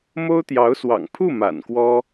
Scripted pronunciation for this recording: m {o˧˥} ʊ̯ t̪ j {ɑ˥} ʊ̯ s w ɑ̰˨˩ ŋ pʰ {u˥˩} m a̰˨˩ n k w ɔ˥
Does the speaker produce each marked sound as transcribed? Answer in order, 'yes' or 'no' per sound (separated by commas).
no, no, yes